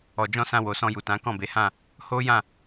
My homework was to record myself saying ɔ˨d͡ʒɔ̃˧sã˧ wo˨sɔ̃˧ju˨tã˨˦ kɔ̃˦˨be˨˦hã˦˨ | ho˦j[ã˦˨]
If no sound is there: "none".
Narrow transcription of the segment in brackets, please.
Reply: ã˦˨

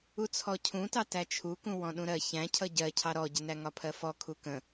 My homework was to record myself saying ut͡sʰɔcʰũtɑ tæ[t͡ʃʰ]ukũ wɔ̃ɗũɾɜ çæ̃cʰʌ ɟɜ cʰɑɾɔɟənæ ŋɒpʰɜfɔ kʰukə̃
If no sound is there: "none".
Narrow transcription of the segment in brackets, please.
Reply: t͡ʃʰ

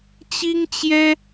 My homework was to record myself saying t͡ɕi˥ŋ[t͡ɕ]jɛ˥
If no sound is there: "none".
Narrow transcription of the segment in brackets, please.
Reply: t͡ɕ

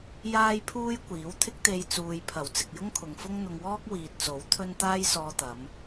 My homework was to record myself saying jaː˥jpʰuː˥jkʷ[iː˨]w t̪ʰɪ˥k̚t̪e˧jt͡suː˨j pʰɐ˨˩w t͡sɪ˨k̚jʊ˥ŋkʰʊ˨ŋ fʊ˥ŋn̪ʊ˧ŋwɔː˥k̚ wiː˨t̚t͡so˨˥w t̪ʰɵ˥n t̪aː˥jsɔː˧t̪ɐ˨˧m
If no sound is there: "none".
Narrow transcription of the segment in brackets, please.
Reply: iː˨˥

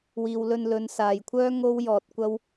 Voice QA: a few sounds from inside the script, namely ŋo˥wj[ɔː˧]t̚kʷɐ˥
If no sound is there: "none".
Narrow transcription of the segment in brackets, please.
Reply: ɔː˧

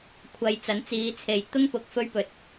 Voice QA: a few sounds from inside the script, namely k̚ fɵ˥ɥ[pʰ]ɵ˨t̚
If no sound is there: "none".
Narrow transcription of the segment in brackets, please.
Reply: p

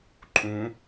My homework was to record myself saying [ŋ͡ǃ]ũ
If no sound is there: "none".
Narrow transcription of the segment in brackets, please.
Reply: ǃʼ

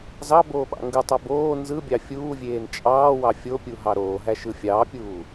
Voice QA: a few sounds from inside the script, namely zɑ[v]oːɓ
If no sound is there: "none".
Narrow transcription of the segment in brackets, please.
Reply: b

